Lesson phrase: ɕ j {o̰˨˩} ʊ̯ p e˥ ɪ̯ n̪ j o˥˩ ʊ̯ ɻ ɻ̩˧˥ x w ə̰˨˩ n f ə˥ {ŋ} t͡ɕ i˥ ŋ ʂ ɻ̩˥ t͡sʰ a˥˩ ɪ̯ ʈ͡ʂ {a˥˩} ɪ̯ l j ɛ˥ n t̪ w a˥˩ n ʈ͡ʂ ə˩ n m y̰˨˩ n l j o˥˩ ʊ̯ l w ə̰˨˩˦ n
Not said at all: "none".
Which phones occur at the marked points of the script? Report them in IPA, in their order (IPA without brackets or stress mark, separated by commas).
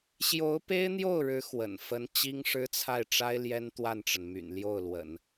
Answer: o˧˥, n, a˥